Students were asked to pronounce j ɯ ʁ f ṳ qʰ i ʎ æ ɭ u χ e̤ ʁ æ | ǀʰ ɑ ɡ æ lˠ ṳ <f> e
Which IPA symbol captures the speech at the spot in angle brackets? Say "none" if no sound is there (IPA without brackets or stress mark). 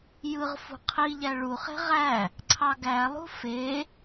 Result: f